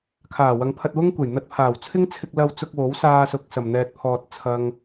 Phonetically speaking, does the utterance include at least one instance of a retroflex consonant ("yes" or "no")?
no